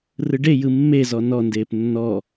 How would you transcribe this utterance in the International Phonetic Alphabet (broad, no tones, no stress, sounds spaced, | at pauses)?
r ɯ ɖ e j ɯ mː e z ɔ n ɔ n d eː p nː ɔ